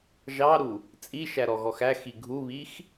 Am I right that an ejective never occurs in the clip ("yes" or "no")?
no